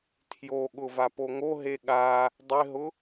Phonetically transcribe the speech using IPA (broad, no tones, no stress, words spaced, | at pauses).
tʰjoɠʊ vapoŋoɦe ɠa | dˤɪɦʊ